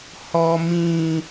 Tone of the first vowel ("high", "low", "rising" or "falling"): high